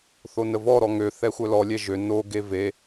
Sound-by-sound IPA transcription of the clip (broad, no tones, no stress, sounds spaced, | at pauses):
θ o n ə v ɔ ɾ ɔ ŋ ø θ ɛ xʷ œ l ɔ lʲ ɛ ʒ ø n o ɡ e v e